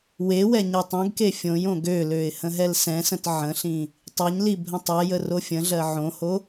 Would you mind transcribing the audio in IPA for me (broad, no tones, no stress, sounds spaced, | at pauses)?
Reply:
w e w ɛ ɲ ɛ tˤ õ ɡ k e fʲ õ j õ ɡ ø l ø ɪ̯ h ə̃ ɦ ɛ l s ɛ̃ s ə̃ t ʕ ə̃ ɬ ĩ | tˤ ɛ ɲ l i bʱ ə̃ tˤ ɛ j ə r o fʲ ə̃ ɮ ɜ ʕ õ h o